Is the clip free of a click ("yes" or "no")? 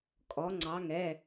no